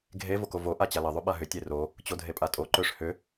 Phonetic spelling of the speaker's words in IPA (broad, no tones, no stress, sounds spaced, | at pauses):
ɡʱ e v o k o v o ʔ a t͡ɕ a l ə ðˤ o ɓ a ɦ ʏ tʲ e r o | t͡ɕ o dʱ e pʼ a tʼ o ǃ ø ʂ h ʏ